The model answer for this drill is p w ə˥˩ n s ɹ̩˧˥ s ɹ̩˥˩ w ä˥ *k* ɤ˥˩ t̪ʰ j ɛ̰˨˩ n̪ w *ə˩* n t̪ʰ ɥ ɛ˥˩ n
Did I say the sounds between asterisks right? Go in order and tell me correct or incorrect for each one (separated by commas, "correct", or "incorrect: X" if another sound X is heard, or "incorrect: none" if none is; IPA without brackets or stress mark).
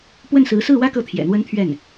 correct, incorrect: ə˥